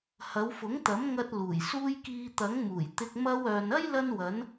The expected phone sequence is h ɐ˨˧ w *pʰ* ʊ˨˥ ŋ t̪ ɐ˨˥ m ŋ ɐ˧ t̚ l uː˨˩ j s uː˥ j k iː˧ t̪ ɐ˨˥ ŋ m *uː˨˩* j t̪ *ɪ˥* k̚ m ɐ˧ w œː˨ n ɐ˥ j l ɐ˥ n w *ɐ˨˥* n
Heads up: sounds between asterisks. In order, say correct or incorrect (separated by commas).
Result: incorrect, correct, incorrect, correct